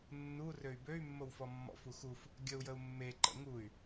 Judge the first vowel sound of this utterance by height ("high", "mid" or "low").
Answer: high